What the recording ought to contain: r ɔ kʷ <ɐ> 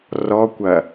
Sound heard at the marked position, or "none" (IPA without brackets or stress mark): ɐ